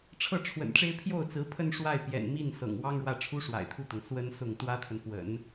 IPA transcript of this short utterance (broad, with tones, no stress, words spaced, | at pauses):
ʈ͡ʂʰɤ˥˩ʈ͡ʂʰwə̰˨˩nʈ͡ʂe˥ɪ̯ pʰjo˥˩ʊ̯t͡sɹ̩˧˥pʰə˥˧n ʂwa˥˩ɪ̯pjɛ̰˨˩nmi˥˩n sɤ̰˨˩ŋwɑ˥ŋɻwä˥˩ ʈ͡ʂʰu˥ʂwa̰˨˩ɪ̯t̪ʰu˥˩t̪ɤ˩ŋ swə˥nsʊ˥˩ŋ t̪wä˥t̪ʰə˨npwə̰˨˩˦n